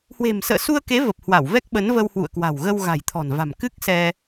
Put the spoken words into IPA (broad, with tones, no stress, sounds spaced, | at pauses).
h w e̤˨˩ m s ə̰ː˧˨ s u˧ ə̯ k e˨˦ v ə˨˩ p̚ h w a˧˩ w v ɛ˦˥ k̚ ɓ ə˨˦ n v ə˧ w h w ṵ˧˨ ə̯ k w a̤˨˩ w ɣ ə˧ w ɣ a̤˨˩ j t̪ʰ ɔ̤˨˩ n v a̤˨˩ m k ɨ˦˥ k̚ s ɛ˧